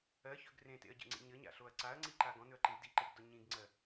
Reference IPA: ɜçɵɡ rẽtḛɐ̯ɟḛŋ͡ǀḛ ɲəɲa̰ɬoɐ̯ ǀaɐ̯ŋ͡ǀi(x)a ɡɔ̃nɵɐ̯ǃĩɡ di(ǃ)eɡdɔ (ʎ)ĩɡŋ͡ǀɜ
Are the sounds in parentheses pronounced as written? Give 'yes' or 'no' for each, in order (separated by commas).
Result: no, yes, no